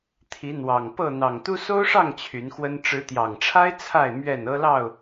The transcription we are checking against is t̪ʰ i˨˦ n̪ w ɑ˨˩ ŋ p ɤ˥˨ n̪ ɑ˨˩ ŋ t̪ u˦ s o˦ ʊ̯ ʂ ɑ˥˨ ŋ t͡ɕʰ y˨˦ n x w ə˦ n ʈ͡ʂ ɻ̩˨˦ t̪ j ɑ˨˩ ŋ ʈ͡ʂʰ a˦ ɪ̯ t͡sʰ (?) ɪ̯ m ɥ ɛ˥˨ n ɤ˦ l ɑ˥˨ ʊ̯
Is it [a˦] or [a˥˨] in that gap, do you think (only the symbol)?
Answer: a˥˨